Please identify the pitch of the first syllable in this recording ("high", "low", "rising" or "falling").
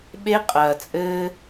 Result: high